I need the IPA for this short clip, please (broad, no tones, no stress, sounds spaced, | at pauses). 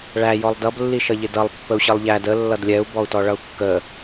ɭ æ j ɔ lˠ d ʌ b lː i ʃ ʌ ʎ ɪ d ʌ lˠ pː ə u̯ ɕ ʌ lˠ ʎ æ d ə lː ʌ d lʲ ɛ u̯ b ɔ u̯ t ɔ ɭ ʌ u̯ kː ə